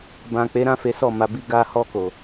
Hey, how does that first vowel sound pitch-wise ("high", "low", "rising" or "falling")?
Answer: low